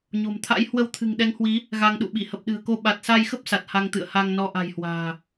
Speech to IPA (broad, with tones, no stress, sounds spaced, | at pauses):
ɲ o̤˨˩ m t̪ʰ a̰˧˥ j h w ə˧ w t̪ʰ ɨ̤˨˩ ŋ ɗ ɛ˨˦ ŋ h w i˨˦ | ɣ a˧ ŋ ɗ ṵ˧˨ ɓ i˧˩ h ə˨˩ p̚ ɗ ɨ̤˨˩ ə̯ k o˧ ɓ a˨˩ t̚ s a˧ j x ə˦˥ p̚ s a˨˩ t̚ h a˧ ŋ t̪ ɨ̰˧˨ ə̯ h a˧ ŋ n ɔ˧ ʔ a̤˨˩ j h w a̤ː˨˩